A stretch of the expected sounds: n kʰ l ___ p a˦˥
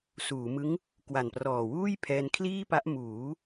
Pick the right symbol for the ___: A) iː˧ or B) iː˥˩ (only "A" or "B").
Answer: B